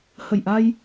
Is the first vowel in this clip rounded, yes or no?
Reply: no